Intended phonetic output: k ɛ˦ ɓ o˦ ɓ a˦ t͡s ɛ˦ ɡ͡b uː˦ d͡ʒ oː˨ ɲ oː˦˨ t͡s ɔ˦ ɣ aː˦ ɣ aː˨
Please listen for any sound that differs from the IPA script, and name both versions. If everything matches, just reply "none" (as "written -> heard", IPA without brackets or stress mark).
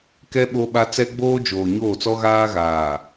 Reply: uː˦ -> oː˦